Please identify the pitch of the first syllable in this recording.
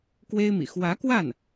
high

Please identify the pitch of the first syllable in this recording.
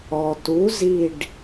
low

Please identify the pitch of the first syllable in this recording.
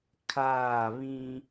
falling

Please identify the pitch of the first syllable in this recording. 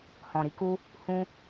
low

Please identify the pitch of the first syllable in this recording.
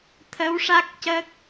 rising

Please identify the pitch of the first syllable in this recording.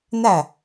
falling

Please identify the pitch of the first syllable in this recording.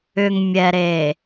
low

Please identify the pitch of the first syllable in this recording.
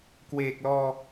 low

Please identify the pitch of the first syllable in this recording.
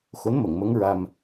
rising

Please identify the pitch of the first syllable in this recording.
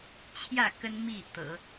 falling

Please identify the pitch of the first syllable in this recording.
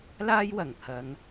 high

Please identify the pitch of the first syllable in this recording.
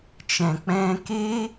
low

